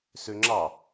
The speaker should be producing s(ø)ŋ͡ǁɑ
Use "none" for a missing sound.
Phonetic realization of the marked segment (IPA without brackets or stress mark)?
ø